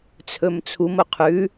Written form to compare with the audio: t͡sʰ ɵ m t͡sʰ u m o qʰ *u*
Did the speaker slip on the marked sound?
yes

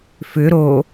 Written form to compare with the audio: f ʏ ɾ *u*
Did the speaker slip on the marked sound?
yes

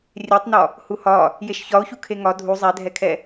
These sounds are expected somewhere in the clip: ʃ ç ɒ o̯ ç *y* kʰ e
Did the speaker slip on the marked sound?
yes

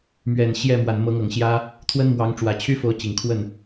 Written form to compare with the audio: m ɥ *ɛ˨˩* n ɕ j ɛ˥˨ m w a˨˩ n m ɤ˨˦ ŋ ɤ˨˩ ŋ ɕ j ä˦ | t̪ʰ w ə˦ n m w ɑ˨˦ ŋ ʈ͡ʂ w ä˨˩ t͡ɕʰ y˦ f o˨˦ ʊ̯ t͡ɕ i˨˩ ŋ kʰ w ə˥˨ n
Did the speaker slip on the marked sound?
no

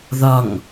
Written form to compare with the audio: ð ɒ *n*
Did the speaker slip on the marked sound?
yes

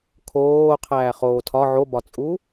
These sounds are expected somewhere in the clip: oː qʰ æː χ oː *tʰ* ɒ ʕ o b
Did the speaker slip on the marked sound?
no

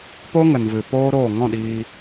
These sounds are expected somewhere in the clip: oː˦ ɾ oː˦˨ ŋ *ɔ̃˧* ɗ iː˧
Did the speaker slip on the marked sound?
yes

